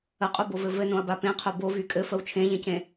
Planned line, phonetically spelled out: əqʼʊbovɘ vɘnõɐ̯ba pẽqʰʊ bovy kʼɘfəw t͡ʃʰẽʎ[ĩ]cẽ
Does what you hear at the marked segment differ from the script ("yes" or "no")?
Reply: yes